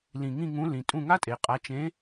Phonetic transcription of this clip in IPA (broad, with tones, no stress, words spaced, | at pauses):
lĩ˨˩ŋĩ˦˨ ŋũ˨˥lĩ˨˩ tʼũ˦˨ŋa˥tʼe˨˩qʼa˨˥ t͡ʃẽ˨˥